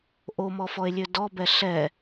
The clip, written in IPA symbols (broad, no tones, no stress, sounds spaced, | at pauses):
ʔ o m ɔ f ɔ e̯ lʲ ø d ɔ b ɛ ɬ ɛ